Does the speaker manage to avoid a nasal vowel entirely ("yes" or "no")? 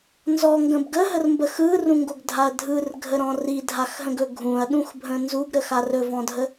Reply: no